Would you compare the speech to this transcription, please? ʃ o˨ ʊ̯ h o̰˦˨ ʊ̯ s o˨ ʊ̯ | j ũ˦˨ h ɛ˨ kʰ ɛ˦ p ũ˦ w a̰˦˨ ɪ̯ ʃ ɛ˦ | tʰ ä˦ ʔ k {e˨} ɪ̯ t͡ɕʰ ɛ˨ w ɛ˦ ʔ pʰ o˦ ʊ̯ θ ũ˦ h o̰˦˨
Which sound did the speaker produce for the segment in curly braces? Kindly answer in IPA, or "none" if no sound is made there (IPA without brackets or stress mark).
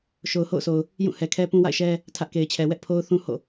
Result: e˨